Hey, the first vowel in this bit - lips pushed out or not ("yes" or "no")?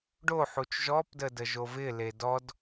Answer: yes